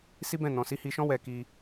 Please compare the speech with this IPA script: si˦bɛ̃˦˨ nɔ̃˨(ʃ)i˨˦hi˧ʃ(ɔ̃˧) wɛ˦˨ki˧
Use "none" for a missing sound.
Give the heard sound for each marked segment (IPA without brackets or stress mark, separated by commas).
s, ɔ̃˦